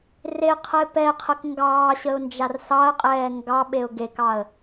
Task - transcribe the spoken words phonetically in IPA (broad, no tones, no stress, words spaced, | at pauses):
reqʰəɪ̯ pɛqʰək ŋɡɑː ɕəʊ̯nd͡ʒarsɑə̯qʼɛː ŋɡɑ ɓeʊ̯ɡekɑə̯